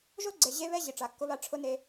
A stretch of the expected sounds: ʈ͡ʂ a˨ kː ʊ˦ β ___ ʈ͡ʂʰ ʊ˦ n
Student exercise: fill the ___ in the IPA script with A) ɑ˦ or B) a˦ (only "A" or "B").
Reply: B